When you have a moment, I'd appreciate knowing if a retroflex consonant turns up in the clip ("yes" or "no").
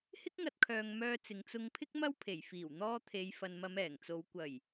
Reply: no